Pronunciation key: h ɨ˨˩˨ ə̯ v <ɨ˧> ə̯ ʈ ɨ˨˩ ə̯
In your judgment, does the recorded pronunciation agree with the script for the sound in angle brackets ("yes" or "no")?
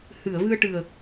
yes